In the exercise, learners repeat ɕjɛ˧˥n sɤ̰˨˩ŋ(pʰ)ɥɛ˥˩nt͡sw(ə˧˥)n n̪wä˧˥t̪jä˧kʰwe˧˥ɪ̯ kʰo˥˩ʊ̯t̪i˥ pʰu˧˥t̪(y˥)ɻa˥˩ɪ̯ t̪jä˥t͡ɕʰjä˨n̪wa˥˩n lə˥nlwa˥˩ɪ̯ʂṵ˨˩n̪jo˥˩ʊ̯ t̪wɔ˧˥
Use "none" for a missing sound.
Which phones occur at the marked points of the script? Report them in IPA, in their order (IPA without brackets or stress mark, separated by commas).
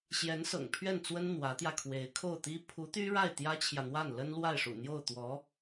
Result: pʰ, ə˥, y˥